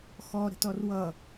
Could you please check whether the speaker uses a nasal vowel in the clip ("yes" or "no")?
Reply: no